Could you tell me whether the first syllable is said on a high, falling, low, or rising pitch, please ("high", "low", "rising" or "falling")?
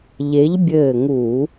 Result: rising